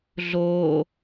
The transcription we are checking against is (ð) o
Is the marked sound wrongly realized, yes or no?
yes